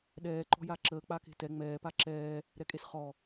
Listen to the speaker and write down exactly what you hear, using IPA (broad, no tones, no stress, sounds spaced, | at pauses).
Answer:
ɗ ɛː ǃ ɔ̤ j a ǁ əː k͡p a k e̤ t ɛ ŋ͡m ɛː p a ǁ ɛː | ɾ ɛ kʼ e s χ ɔ